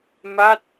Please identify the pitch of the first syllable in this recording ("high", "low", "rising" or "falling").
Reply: falling